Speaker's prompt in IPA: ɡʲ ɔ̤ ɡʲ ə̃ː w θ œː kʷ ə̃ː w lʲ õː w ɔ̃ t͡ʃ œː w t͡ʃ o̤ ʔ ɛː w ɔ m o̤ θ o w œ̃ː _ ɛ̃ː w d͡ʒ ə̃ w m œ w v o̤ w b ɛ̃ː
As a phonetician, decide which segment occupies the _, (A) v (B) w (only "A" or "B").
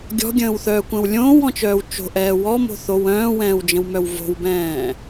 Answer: B